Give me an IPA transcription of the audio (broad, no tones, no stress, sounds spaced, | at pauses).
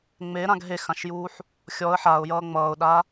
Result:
ŋ͡m e ɾ ã ɡ ɦ e x ã ʃ j uː ħ | xʲ ɔ ə̯ ħ a ʊ̯ j ʌː ŋ͡m ʌː ʊ̯ ɗ a